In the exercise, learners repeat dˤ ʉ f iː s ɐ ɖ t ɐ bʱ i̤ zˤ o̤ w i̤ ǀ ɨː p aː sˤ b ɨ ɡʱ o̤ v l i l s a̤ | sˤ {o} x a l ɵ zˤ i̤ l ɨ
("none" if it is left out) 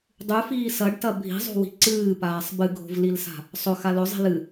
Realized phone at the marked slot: ɵ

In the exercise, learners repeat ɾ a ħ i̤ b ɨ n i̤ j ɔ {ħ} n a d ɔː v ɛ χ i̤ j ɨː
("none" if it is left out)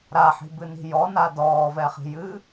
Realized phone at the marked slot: none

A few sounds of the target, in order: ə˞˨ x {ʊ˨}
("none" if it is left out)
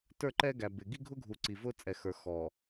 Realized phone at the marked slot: ɔ˨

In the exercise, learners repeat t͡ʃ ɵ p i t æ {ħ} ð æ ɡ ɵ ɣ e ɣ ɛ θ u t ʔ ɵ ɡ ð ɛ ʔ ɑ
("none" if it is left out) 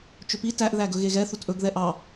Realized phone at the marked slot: ʔ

